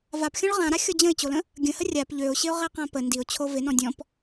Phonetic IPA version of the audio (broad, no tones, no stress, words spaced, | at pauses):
vapxʲɔ̃ɭ ʁãɾaxʲɔ d͡ʑə̃ɪ̯t͡ɕolə̃ | ɡʲə̃hə rʲap ʎøʊ̯ɕɪʊ̯ʁɛqã pə ndiʊ̯t͡ɕʰo vɪnɔ̃ dʲɔ̃p